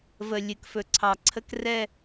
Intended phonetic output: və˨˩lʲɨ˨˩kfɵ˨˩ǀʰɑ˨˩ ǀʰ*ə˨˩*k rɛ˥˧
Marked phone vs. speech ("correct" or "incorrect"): incorrect